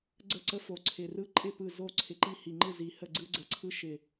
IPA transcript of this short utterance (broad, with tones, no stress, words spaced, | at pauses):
ɡ͡ǀə˥˩ǀə˦fo˨˩ ǀʰɪ˨˩rɯ˦ ǃʼɪ˥˩ pɯ˥˩zo˥˩ ǀʰɪ˨˩ǃi˥˩hi˨˩ŋ͡ǃɯ˥˩ zi˨˩hə˥˩ɡ͡ǀɯ˦ ɡ͡ǀə˨˩ǀʰɯ˦ʃɪ˨˩